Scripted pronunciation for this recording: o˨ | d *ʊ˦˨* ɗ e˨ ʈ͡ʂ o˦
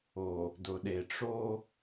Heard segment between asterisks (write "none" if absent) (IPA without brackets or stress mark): ʊ˨